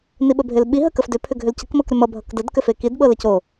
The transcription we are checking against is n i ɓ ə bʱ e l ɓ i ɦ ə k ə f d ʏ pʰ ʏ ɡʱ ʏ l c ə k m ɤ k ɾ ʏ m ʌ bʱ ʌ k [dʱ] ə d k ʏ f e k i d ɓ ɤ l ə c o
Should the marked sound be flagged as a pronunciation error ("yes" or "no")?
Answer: yes